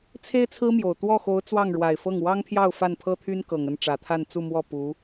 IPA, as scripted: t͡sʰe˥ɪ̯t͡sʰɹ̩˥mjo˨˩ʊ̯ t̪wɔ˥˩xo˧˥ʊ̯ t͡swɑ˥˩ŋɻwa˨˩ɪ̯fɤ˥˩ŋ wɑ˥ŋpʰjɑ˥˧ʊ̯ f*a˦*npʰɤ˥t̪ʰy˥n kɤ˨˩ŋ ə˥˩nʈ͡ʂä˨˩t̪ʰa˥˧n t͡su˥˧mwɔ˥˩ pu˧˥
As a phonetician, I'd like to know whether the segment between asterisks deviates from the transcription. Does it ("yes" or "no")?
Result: yes